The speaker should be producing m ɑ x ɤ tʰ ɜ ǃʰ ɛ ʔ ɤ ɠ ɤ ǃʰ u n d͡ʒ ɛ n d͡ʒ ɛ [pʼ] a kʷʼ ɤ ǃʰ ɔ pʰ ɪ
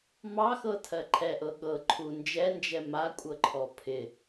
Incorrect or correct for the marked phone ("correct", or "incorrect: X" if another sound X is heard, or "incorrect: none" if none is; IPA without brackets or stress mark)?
incorrect: m